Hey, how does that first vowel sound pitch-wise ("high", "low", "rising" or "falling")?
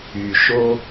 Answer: low